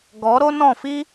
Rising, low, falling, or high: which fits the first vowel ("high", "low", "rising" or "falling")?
rising